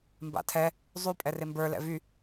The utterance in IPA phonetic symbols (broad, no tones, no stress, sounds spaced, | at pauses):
m b a̰ tʰ ɛ | zˤ y pʼ ɛ r e m b ə˞ l ɛ̰ v y